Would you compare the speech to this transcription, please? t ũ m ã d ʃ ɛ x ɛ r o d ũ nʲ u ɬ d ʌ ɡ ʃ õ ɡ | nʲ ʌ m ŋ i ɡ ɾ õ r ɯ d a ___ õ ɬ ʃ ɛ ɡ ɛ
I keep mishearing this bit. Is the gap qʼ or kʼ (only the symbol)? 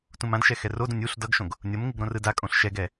kʼ